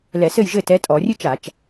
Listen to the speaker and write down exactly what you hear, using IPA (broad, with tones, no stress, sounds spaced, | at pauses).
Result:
l ɛ˧˩˧ s ɘ˥˩ j ʒ ɘ˥˩ t ɛ˨˥ tʼ ɔ˧˩˧ rʲ ɨ˦˥ t͡ʃ a˧˩˧ t͡ʃ